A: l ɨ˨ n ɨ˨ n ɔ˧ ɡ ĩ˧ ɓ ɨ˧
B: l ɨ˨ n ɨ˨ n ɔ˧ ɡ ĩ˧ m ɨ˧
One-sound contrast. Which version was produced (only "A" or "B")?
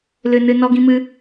B